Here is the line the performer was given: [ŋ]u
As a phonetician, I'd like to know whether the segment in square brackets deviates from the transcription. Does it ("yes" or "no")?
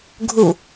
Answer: yes